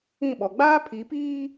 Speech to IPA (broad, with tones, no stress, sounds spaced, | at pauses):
ĩ˦˨ ɓ ɔ˨ ɡ͡b aː˦ pʰ i˨˦ p iː˦